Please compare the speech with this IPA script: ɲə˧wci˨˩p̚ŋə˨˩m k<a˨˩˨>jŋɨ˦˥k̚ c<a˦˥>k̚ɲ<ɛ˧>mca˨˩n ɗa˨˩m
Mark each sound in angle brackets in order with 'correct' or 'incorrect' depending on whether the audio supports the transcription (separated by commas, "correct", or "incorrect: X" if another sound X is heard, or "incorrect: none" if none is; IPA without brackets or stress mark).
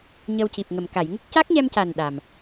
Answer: correct, correct, correct